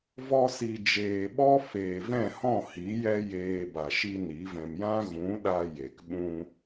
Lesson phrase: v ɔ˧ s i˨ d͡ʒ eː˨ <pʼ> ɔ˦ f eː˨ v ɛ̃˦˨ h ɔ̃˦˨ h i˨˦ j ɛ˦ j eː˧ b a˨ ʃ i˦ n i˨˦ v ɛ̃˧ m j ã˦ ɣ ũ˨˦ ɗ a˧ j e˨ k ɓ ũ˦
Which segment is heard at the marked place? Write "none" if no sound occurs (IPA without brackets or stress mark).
ɓ